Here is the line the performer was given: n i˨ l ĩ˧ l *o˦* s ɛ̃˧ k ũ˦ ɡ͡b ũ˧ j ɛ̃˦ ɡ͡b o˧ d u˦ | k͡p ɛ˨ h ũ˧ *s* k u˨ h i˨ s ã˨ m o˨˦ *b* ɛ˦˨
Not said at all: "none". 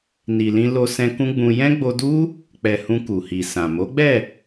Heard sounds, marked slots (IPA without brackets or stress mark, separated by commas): o˧, none, ɡ͡b